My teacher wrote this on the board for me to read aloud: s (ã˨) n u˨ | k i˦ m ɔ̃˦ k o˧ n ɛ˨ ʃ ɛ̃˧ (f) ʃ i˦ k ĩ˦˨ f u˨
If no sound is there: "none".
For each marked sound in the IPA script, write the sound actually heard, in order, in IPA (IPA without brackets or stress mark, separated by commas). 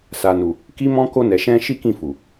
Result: a˨, none